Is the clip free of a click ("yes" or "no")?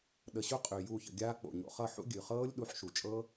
yes